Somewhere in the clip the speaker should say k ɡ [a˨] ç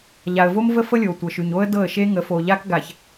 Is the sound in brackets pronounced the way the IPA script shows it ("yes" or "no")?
yes